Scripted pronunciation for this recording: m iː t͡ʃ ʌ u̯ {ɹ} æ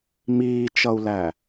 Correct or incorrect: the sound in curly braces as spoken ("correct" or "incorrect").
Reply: incorrect